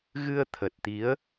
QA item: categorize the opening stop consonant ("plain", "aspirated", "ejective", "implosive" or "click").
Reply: aspirated